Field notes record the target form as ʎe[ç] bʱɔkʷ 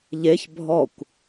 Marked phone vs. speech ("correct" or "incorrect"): correct